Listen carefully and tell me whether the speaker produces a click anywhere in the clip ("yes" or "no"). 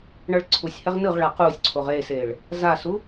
yes